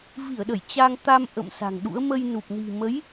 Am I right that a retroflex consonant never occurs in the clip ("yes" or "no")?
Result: yes